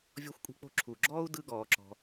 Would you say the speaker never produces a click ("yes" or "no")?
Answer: no